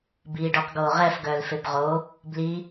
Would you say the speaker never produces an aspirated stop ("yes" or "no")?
yes